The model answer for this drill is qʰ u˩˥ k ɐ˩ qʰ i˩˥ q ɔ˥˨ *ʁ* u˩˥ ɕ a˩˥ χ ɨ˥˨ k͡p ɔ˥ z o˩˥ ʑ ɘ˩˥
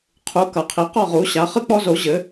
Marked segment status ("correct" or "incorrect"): correct